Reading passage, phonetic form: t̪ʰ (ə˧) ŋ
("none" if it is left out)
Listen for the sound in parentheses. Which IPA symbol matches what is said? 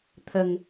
ə˧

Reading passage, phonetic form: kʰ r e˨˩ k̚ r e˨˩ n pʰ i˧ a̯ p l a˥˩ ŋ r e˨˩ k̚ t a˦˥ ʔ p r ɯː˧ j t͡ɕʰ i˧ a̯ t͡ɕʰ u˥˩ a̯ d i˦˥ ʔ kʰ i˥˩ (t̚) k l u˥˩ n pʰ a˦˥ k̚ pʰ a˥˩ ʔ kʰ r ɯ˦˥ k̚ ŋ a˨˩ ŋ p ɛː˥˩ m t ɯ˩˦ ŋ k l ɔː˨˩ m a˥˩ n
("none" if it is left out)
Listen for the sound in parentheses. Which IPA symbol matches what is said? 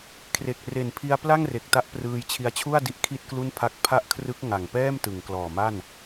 t̚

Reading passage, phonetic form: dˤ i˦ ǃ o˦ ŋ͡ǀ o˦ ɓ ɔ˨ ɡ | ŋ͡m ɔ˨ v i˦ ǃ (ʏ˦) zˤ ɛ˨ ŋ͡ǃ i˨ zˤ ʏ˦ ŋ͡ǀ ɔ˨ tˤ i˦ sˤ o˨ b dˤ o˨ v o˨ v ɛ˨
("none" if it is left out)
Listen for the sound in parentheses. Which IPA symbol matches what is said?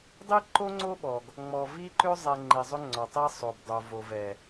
ʏ˦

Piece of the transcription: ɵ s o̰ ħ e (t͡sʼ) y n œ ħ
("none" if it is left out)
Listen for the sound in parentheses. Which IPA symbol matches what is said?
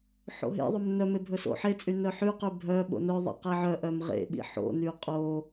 t͡sʼ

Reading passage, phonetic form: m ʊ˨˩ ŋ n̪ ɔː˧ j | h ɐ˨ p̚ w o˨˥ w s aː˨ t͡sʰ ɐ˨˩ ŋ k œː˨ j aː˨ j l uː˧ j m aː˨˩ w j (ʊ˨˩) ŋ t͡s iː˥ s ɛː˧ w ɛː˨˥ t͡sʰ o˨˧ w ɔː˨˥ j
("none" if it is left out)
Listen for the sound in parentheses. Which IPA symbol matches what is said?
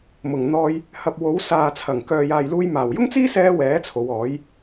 ʊ˥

